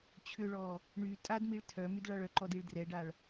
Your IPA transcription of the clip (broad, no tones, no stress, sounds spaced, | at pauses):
t͡ɕʰ ʏ ɭ ɔ | ɳ y tʼ a d m i ɭ tʰ œ m y d ɭ a ɭ œ ǃ ɔ d i ɭ d r ɛ ɖ a ɭ